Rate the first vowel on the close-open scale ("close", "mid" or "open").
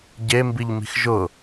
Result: mid